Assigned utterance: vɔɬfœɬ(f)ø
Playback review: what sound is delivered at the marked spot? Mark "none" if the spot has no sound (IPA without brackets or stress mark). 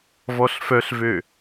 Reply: v